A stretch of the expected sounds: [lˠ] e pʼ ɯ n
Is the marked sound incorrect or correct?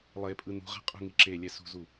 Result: correct